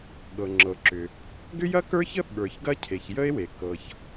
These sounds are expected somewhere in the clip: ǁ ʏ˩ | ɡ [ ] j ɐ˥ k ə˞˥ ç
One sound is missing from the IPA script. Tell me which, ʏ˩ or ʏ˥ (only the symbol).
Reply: ʏ˥